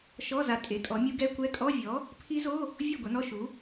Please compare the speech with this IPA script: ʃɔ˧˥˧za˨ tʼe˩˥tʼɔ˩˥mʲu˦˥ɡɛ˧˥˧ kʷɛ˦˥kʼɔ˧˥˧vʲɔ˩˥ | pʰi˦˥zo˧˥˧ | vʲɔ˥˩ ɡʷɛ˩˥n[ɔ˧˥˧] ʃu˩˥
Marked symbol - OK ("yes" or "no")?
yes